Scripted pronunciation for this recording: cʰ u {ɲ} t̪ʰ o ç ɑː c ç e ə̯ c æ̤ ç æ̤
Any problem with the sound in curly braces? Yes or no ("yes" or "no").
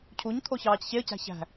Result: no